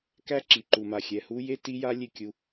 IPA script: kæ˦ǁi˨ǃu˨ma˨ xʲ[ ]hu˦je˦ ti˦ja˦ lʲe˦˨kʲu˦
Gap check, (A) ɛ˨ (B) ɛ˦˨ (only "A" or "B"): A